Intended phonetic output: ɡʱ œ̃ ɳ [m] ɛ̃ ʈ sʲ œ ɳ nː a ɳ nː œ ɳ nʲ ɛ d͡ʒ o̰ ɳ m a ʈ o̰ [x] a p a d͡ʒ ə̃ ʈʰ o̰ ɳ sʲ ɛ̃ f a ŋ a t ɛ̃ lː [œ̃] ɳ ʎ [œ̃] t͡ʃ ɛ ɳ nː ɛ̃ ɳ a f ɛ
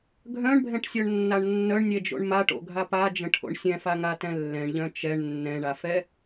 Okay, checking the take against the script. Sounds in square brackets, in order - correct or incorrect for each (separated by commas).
incorrect, incorrect, incorrect, correct